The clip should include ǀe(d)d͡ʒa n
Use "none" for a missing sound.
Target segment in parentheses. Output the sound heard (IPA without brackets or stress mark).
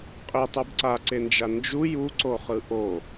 n